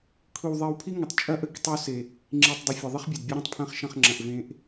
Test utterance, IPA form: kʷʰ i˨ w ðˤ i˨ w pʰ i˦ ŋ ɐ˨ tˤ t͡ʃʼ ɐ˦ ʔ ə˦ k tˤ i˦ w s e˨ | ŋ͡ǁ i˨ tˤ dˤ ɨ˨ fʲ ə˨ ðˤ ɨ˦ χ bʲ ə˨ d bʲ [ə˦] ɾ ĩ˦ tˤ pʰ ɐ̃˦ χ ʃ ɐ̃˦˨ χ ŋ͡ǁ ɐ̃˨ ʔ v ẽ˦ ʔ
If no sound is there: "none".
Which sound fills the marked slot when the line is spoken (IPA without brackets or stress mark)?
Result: ə˦